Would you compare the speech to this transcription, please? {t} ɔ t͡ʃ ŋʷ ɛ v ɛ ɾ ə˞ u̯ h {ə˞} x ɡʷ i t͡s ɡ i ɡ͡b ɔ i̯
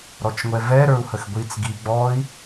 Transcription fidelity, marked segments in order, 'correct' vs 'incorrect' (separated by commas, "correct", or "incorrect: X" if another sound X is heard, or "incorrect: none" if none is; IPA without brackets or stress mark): incorrect: ɾ, incorrect: ə